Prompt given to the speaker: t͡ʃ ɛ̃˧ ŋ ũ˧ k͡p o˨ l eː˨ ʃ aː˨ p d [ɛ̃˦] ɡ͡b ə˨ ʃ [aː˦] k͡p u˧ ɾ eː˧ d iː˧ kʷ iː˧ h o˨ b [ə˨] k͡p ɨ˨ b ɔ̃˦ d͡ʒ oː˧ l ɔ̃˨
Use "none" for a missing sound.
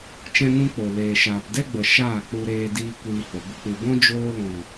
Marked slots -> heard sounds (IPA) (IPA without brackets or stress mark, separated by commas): ɛ˦, aː˦˨, ə˧